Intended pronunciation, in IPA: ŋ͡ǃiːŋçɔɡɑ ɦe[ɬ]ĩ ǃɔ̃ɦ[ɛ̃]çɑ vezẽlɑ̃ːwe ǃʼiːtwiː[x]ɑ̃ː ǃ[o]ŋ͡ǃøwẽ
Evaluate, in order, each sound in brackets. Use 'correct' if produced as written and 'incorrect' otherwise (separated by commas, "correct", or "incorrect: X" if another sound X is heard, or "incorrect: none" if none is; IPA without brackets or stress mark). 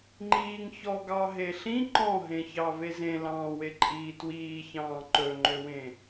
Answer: correct, incorrect: ẽ, incorrect: ç, incorrect: ɵ